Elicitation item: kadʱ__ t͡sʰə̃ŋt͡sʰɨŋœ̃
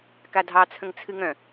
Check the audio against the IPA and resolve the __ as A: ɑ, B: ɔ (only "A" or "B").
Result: A